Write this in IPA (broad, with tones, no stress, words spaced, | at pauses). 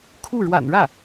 kʰu˥˩ ɻwa̰˨˩nɻä˥˩